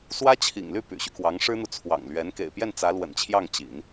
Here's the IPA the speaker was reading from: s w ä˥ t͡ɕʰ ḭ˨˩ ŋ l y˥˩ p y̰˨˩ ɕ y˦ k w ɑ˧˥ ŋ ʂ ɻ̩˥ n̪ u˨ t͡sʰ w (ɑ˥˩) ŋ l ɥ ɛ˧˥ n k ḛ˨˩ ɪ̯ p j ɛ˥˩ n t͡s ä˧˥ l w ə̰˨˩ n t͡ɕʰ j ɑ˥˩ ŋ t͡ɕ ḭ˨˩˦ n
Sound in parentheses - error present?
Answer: yes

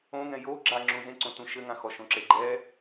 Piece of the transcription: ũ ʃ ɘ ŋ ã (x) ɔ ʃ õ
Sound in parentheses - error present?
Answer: no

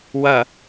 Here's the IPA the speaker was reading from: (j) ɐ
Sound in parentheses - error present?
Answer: yes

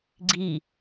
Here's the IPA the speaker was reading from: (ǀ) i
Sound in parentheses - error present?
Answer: yes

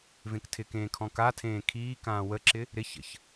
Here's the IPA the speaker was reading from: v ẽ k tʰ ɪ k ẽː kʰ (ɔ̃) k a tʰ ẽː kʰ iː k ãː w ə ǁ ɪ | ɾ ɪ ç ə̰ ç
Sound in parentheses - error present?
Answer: no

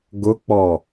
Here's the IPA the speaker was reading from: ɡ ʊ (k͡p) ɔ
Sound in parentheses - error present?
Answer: no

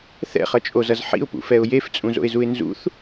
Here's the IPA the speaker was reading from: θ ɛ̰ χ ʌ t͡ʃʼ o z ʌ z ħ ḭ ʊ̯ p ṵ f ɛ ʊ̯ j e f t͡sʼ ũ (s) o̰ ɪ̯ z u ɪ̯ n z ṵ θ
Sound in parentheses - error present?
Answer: yes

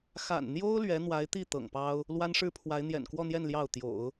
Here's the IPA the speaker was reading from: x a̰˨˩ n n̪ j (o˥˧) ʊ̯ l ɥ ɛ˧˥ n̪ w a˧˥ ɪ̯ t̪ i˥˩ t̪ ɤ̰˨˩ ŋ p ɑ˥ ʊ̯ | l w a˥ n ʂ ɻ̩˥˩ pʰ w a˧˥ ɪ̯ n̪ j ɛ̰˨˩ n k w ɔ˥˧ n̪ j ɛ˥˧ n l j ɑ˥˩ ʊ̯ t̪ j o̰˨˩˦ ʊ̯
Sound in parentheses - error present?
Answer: yes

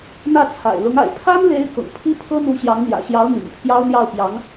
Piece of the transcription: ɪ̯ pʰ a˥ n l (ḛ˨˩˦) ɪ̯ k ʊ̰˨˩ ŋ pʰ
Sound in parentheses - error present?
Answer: yes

